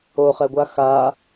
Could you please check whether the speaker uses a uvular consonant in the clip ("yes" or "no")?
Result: yes